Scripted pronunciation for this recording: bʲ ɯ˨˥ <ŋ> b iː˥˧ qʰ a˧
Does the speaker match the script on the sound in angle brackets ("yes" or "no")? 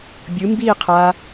no